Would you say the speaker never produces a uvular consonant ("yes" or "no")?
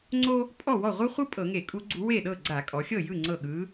no